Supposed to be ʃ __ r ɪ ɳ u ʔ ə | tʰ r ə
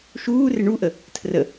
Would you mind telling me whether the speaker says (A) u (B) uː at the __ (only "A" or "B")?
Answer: B